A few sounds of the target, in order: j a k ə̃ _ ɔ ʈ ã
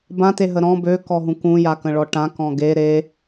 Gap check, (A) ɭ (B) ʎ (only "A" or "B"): A